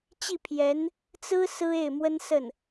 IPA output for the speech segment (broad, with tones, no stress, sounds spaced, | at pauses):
t͡ɕ i˥˩ pʰ j ɛ˧˥ n | t͡s ɹ̩˥ s ɹ̩˥ e˥˩ ɪ̯ m w ə˥ n s ə˥˩ n